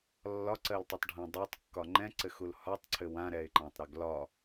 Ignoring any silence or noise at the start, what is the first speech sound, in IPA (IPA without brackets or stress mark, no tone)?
lː